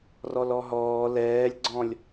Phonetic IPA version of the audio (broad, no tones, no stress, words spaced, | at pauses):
rɔlɔɦɔː lɛːlʲɡ͡ǀɔ̃lʲ